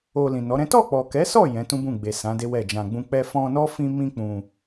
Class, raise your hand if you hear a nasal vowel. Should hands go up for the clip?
yes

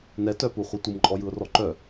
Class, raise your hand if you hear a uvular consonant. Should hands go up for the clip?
yes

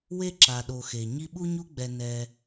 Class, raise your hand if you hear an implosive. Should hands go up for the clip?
yes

